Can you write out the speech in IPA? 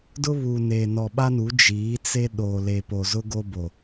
d ʊ˦ β uː˨ n eː˨ n ɔ˨ ɓ a˦ n u˨˦ d͡ʒ iː˨˦ t͡s e˦ ɗ oː˨ l e˨ p o˨ z ʊ˦ ɡ o˦ b o˨

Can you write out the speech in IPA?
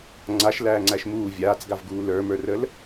ŋ͡ǀ a ʃ l æː ŋ͡ǀ æ ʃ m uː vʲ aː t͡s ɡ a v ɡ uː l ə˞ m ə˞ r ə l

